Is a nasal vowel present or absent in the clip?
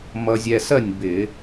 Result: absent